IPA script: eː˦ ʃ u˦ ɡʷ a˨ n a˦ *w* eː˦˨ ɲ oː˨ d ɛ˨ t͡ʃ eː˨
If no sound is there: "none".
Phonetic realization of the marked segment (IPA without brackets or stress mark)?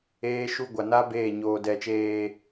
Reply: b